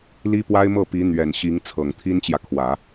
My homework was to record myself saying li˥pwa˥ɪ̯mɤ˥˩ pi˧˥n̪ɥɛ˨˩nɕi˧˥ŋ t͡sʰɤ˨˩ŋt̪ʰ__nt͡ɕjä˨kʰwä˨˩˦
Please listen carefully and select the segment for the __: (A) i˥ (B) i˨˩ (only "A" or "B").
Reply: A